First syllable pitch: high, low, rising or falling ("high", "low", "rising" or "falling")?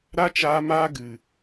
high